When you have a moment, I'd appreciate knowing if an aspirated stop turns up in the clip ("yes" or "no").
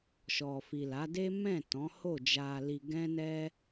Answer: no